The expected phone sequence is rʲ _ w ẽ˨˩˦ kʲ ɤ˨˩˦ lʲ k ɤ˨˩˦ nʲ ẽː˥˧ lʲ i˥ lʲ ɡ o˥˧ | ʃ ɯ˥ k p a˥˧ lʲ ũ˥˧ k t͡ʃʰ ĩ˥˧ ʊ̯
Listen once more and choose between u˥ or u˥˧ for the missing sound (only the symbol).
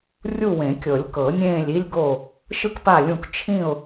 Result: u˥˧